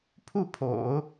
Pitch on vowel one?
falling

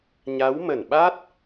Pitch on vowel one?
rising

